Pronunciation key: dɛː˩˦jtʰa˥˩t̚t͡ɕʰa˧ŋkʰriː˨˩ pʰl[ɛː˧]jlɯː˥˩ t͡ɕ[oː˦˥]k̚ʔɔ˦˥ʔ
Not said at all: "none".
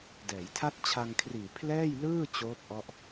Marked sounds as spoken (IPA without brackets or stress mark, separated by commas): ɛː˥˩, oː˦˥